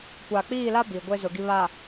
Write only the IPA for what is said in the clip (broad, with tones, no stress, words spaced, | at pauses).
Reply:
kʷa˨k͡piː˦˨la˦ bi˨ɡʷe˦zʊ˨ ɡi˨βa˨